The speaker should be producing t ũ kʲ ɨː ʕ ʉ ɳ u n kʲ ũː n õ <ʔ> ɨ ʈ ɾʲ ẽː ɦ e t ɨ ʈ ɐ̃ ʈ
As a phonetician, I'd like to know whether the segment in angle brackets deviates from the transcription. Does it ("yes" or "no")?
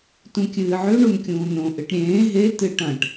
no